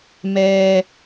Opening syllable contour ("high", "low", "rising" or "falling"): low